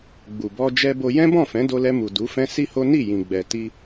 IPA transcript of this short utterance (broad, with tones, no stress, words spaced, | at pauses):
ɡ͡bu˨bɔ˧ d͡ʒɛ˦bo˧ jɛ̃˦bɔ̃˦˨fɛ̃˨˦ do˧lɛ˧mu˨ du˨˦fɛ̃˦ si˦ho˦ ni˦˨jĩ˨ ɡ͡bɛ˨ti˧